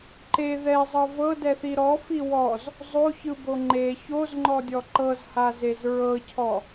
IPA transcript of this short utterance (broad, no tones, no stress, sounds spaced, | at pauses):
ǃ e ð ɛ zˤ ɤ v ɤ d ɛ θ i ɾ ɔ f i w ɔ z | zˤ o ç ɯ b o ŋ͡ǃ e ç o z ŋ͡ǃ ɔ dʲ ɔ ǃ ɤ z h a z e z ɹ ɤ cʰ ɔ